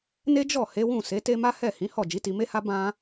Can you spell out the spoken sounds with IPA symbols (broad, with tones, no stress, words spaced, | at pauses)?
ne˦d͡ʒɔ˦˨ he˨˦wũ˦˨se˨˦te˦ ma˦hɛ˦˨hĩ˨˦ hɔ˦˨ d͡ʒi˨˦ti˧me˦ha˦ bã˦